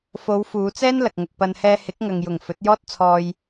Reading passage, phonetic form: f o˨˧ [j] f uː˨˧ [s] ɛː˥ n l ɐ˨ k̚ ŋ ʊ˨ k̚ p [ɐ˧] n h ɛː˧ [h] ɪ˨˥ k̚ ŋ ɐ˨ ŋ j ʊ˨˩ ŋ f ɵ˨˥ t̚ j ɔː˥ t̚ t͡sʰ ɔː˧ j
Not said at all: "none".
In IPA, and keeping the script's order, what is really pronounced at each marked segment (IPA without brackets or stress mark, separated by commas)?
w, t͡s, ɐ˧, h